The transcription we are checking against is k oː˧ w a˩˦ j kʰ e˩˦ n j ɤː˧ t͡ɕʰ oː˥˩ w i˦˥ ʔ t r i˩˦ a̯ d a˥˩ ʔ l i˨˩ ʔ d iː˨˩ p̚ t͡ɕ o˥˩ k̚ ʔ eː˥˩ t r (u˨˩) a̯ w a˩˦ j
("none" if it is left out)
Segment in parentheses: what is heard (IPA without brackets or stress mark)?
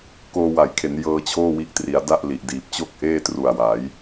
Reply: u˨˩